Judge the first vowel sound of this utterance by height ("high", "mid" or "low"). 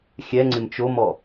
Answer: mid